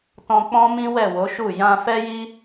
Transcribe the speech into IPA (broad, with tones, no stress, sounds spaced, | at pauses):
t ɔ̃˧ k͡p ɔ̃˦ m ĩ˦ w ɛ˦˨ w o˨˦ ʃ u˦˨ j ã˧ f ɛ˦ j i˦